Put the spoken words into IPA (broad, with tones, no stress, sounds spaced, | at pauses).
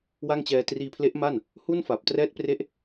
w a˥˩ ŋ t͡ɕ ɛː˧ t r iː˧ pʰ l e˦˥ ʔ m a˥˩ n | h u˥˩ n f a˨˩ p̚ t r ɛː˦˥ t̚ p r e˦˥ ʔ